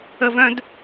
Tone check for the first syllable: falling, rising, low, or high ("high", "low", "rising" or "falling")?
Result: high